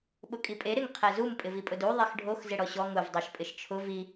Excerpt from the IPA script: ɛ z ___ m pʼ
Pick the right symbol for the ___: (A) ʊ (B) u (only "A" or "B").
B